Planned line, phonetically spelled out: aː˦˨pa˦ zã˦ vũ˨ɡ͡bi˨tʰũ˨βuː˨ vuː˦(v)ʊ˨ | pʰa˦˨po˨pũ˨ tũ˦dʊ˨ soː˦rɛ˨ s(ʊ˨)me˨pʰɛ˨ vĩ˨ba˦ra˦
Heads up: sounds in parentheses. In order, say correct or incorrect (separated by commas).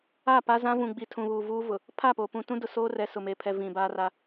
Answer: correct, correct